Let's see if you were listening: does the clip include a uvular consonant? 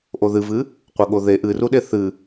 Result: yes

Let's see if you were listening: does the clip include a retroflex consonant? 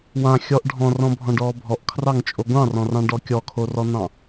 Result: yes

